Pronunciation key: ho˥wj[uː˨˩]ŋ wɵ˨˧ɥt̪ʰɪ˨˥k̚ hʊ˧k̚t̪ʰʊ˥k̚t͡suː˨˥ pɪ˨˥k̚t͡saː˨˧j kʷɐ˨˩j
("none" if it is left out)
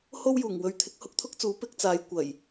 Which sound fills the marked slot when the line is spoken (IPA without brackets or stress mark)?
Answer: uː˨˩